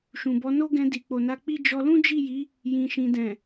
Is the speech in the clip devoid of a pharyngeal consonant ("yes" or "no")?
yes